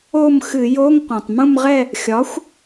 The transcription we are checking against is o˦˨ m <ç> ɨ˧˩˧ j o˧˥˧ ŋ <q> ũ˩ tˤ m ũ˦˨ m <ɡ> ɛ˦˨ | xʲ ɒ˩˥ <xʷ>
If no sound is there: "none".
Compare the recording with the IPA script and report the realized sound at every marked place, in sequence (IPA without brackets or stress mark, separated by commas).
x, q, ʁ, xʷ